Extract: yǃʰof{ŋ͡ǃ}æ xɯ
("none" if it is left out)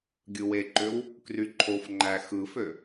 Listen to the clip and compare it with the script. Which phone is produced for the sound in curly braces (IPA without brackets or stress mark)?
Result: ŋ͡ǃ